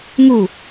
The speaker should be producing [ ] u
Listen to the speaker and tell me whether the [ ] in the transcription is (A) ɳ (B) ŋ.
B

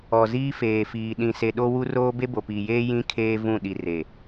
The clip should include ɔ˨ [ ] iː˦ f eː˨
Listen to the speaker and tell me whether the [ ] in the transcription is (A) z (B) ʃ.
A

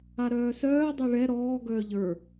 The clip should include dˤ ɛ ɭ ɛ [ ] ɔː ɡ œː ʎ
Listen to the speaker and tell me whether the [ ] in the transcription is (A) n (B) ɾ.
B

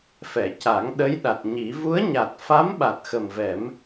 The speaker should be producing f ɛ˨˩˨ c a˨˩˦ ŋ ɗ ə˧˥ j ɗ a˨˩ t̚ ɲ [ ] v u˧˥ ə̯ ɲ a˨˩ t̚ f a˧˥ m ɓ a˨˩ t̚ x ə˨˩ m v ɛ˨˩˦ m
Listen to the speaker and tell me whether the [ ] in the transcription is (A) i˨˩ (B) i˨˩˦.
B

